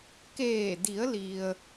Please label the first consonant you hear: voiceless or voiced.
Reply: voiceless